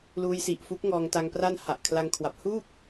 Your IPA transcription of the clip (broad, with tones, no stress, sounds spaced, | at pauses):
l uː˧ j s i˨˩ ʔ f u˦˥ k̚ ŋ ɔː˧ ŋ t a˧ ŋ p r a˥˩ n h a˨˩ ʔ kʰ l a˧ ŋ kʰ w a˨˩ p̚ h uː˥˩ p̚